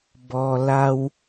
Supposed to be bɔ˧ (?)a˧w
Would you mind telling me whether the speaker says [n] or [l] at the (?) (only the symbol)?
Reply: l